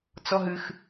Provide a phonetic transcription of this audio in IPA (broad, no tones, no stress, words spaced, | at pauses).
t͡sɔɦɨx